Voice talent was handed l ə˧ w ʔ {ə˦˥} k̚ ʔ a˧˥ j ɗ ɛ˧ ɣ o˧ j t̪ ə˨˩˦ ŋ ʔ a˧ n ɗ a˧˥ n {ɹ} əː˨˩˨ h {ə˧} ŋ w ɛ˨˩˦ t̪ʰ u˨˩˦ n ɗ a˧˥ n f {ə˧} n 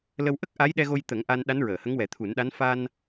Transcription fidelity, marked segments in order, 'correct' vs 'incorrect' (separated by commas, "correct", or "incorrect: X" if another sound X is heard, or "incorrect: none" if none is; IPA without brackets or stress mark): correct, correct, incorrect: ə˧˥, incorrect: a˧